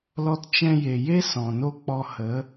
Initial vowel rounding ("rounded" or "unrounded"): rounded